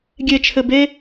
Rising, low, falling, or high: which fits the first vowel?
high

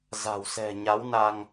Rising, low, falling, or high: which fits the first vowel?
low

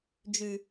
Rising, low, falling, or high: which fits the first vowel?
low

